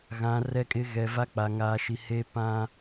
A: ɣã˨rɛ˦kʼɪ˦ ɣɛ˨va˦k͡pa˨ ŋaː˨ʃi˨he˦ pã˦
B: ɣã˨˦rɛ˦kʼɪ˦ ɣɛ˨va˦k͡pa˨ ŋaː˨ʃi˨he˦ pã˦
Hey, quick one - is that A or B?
B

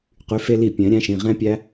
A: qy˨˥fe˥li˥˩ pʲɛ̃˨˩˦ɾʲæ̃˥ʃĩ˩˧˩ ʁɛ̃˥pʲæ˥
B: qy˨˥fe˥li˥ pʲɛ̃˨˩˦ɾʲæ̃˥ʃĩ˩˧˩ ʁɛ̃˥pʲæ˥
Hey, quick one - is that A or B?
A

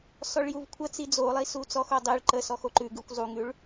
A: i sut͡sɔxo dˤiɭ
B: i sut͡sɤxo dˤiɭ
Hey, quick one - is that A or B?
A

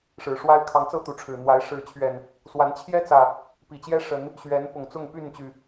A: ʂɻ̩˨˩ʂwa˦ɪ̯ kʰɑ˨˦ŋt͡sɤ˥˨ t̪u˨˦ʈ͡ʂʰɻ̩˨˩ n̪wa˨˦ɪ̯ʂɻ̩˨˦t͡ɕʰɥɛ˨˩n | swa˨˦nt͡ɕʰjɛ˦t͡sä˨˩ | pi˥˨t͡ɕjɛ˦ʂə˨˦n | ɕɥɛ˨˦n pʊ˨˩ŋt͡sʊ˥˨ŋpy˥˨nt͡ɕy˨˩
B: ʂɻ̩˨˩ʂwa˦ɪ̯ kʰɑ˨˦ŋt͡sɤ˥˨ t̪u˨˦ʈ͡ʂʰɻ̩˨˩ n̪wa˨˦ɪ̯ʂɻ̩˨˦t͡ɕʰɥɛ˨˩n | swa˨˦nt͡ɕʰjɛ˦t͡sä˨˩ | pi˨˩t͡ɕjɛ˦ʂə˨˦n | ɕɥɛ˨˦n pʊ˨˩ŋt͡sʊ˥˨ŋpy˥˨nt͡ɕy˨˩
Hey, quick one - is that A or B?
B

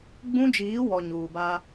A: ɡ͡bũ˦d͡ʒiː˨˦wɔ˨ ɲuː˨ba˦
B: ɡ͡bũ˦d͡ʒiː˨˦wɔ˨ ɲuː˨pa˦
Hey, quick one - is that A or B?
A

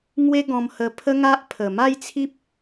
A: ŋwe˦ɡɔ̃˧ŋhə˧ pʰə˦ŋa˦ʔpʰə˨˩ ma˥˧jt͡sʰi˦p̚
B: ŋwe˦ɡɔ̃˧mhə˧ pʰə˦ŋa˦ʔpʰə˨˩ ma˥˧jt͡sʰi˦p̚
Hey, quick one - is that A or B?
B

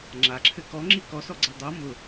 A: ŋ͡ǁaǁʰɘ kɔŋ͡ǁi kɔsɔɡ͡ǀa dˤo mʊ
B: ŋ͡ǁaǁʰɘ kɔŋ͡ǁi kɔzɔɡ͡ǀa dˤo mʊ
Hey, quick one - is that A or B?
A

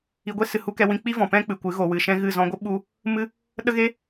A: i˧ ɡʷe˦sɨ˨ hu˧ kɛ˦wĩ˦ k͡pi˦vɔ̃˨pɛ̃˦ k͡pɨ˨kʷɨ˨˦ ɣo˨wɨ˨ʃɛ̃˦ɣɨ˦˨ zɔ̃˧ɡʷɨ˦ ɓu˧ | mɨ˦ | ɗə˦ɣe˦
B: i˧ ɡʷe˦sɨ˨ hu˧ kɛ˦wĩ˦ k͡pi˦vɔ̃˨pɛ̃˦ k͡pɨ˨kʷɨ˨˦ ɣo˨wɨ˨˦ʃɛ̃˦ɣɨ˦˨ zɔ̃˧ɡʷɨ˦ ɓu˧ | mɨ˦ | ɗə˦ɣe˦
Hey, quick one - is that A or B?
A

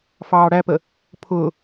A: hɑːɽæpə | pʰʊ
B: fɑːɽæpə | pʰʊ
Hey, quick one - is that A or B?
B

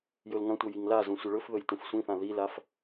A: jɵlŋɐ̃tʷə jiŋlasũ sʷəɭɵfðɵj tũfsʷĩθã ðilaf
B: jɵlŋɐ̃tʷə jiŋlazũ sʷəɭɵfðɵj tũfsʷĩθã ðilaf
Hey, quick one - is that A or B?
B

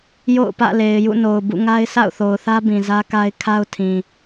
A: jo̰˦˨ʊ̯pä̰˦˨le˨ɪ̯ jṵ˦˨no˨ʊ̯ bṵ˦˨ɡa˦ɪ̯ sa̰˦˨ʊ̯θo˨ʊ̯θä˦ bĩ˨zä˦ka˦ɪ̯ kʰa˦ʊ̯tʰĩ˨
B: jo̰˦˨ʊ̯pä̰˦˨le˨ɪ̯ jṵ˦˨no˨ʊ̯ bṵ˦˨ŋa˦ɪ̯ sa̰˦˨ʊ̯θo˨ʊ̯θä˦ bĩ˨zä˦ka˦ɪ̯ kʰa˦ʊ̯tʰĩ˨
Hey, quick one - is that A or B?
B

